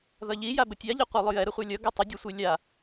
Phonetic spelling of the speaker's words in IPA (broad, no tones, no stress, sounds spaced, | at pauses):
ð ʌ ʎ i j a b ə tʲ a ʎ ɛ qʷ ɛ lˠ ʊ j ɛ ɾ ə χʷ a lʲ ʌ ɡ ʌ tˤ ə dʲ ʊ sʷ i lʲ a